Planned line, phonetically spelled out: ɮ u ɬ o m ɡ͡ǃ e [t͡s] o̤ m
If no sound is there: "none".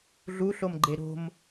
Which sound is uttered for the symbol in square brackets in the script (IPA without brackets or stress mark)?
ɾ